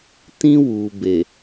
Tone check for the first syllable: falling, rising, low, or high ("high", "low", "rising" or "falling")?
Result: high